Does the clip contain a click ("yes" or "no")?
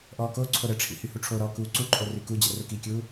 yes